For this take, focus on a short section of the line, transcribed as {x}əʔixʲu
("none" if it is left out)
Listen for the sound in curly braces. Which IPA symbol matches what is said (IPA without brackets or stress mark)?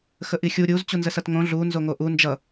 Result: x